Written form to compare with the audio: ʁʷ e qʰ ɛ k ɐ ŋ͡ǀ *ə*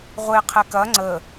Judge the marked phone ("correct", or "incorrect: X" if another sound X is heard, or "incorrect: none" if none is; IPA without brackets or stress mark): correct